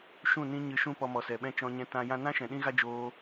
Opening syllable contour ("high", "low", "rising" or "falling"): falling